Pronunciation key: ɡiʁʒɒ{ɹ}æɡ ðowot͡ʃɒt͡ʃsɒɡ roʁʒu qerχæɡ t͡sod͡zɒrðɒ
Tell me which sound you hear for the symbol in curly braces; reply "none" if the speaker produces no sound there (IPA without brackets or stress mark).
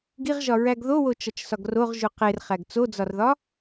ɹ